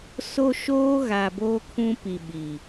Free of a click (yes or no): yes